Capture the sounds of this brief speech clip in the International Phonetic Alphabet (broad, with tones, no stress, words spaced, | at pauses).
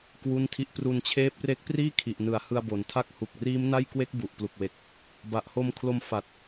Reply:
kwu˥˩ntʰi˥˩ʔ pru˧nt͡ɕʰeː˦˥p̚re˦˥k̚ priː˥˩kʰi˨˩ʔnɯ˩˦a̯ hɯ˧a̯bo˨˩ntʰa˥˩k̚ hu˨˩k̚riː˦˥mna˥˩jkwe˦˥k̚ bu˨˩ʔplu˨˩k̚we˨˩k̚ | ba˨˩ʔho˧mkʰlo˧m fa˨˩t̚